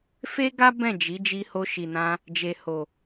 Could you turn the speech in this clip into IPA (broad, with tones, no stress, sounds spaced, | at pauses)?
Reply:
f e˦ ɡ a˦ b ɛ̃˦˨ d͡ʒ i˨˦ d͡ʒ i˧ h o˧ ʃ i˨ n ã˧ | d͡ʒ e˨ h o˨